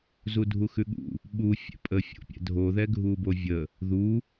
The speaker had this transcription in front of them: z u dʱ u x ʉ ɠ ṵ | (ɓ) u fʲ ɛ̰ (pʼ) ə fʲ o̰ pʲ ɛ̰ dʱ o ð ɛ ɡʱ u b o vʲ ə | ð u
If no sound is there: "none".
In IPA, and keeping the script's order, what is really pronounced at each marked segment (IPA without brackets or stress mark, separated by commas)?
ɓ, pʼ